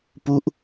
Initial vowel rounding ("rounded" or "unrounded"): rounded